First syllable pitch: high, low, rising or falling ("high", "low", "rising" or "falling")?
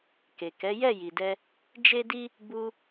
low